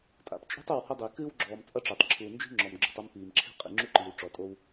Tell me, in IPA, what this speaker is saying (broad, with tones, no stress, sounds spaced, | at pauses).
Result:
tʼ a̰˨ p t͡ʃʼ e̤˦ tˤ o˦˨ w h ɐ˦ dˤ i˨ k ɨː˦ w ɡ͡ǁ ɔː˨ m t͡sʼ ɐ˦ ʈ͡ʂ e˨ tˤ ǁʰ uː˨ n d͡ʒ i̤˦ ŋ͡ǁ ɔ˨ m ɡ͡ǁ ṳ˨ tˤ ɐ˦ m p iː˨ m ǁʰ i̤˦ qʼ ḭ˨ ŋ͡ǁ u˦ ǃ iː˨ w ʈ͡ʂ ɔ˨ tʼ o˦ w